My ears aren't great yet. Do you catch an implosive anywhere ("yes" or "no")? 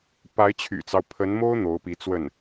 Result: no